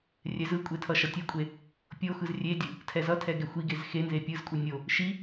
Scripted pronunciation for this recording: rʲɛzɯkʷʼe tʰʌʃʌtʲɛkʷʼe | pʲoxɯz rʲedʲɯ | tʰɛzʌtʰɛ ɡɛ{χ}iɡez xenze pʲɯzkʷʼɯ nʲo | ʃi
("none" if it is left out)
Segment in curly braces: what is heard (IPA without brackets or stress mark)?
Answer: xʷ